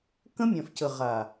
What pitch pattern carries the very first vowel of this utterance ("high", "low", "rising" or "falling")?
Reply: high